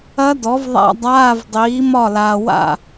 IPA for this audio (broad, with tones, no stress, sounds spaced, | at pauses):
ɐ˦˥ d ɔ˩˥ v ðˤ a̰˧˥˧ dˤ aː˧˥˧ v dˤ iː˩˥ m ɒ˥˩ l aː˨ w a̰˥˩